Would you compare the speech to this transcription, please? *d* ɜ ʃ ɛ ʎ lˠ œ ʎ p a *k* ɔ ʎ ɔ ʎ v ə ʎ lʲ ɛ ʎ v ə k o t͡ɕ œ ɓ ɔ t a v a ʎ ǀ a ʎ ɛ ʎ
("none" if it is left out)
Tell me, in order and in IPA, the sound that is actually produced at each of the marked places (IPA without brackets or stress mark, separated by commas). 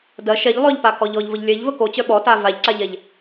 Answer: d, k